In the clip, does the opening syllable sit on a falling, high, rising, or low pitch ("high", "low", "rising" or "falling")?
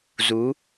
rising